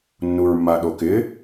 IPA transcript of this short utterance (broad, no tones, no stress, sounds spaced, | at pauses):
nː u ɹ mː a ɗ o k ɪ